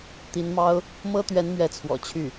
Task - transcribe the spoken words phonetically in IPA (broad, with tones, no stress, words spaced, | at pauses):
t̪i˧˥nmɑ˥ʊ̯ | mɤ˥t̪ɥɛ˧˥n mɥɛ˧˥t͡sʰwɔ̰˨˩ t͡ɕʰy˥˩